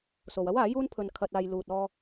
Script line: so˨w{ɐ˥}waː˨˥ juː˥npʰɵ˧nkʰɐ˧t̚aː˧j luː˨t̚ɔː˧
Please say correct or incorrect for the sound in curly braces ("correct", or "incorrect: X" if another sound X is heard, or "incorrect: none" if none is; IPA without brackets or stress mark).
correct